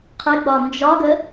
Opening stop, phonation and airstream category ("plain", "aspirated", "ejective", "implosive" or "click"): aspirated